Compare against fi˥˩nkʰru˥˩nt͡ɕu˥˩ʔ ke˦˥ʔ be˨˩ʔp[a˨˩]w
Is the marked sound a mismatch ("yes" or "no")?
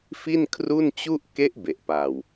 no